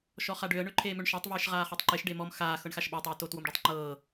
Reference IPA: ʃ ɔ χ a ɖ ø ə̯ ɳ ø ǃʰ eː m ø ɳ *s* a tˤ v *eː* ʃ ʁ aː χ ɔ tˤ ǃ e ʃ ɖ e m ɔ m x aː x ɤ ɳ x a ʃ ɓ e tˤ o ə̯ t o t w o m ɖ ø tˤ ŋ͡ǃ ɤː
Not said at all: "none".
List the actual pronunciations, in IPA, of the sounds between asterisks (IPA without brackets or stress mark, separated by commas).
ʃ, eː